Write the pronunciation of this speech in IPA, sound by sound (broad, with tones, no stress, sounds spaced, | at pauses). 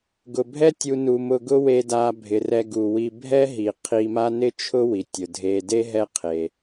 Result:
ɡ ʊ˩ bʱ ɛ˦ tʲ u˨ n u˩ m ʊ˨ ɡ ʊ˦ w e˨ d a˨ bʱ ɪ˩ r ɛ˨ ɡ u˩ w i˨ bʱ ɛ˥ ɦ i˩ qʰ i˨ m a˦ n ɪ˥ t͡ʃʰ ʊ˥ w i˩ tʲ ʊ˩ dʱ e˨ d e˥ ɦ ɛ˦ qʰ e˩